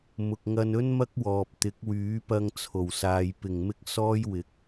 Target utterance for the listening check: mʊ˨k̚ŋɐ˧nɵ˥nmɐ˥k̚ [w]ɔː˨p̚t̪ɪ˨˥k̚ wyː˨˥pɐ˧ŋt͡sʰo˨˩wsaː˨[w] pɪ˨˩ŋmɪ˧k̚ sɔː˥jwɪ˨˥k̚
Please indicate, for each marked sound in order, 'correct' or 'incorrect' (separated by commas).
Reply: correct, incorrect